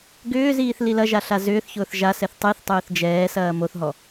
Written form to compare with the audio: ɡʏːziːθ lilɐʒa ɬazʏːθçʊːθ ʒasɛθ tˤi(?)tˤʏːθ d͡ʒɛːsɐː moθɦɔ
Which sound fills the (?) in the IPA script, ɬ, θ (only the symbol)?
θ